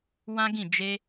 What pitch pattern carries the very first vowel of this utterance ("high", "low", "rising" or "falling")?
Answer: high